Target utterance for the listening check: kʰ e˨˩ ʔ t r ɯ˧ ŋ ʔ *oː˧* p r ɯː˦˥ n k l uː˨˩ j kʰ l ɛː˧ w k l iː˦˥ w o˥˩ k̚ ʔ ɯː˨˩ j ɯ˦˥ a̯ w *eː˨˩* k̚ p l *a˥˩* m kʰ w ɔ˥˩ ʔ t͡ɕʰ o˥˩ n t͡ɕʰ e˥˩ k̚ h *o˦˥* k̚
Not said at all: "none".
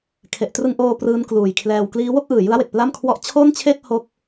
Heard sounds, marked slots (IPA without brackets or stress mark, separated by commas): oː˧, e˨˩, a˥˩, o˥˩